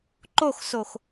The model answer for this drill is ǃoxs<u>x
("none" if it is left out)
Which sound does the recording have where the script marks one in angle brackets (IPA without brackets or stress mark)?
o